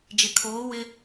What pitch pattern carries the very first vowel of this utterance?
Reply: low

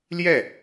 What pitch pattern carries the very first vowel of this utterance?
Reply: falling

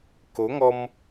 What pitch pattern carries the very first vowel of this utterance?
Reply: rising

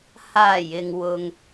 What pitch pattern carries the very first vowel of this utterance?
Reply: low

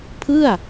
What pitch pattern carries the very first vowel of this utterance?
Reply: falling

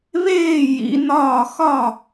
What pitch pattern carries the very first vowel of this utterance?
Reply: falling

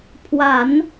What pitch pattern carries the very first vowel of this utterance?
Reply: low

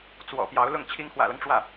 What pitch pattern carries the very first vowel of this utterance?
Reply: low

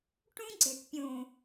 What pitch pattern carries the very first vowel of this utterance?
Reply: high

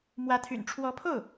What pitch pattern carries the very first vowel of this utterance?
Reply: rising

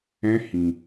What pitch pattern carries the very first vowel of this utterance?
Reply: high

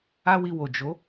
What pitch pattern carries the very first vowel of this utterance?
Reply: high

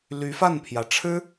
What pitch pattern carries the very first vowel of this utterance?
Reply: rising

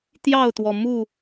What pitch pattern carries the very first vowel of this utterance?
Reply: falling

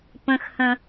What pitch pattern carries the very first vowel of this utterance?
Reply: high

